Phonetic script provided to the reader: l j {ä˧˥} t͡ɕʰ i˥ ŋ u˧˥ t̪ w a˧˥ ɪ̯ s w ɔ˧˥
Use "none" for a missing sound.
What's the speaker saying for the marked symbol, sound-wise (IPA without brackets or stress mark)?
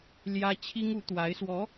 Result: ä˥